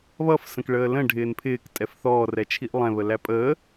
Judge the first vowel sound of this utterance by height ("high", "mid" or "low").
mid